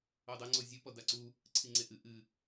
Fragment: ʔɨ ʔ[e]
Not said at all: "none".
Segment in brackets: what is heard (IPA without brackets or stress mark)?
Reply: ɨ